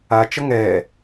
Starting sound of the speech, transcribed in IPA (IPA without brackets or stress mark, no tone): a